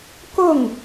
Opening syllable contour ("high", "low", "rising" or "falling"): falling